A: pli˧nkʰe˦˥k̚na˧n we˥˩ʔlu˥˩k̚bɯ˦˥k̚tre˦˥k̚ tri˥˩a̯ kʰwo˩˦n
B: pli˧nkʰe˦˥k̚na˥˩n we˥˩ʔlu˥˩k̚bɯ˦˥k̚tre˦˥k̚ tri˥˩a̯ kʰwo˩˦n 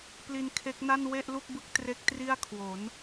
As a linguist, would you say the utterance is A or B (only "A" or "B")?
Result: B